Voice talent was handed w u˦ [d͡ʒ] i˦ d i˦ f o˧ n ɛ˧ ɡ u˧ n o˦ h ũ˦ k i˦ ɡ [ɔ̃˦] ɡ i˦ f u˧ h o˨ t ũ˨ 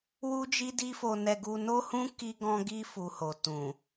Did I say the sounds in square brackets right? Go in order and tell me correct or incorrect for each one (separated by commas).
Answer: correct, correct